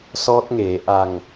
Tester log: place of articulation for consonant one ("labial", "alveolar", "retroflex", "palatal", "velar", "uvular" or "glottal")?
alveolar